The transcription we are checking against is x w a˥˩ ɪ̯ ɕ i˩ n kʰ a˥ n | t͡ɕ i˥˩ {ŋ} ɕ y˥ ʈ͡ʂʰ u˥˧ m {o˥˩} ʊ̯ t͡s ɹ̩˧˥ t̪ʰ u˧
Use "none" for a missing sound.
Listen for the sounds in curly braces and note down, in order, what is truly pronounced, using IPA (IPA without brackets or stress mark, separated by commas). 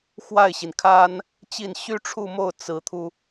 n, o˥˩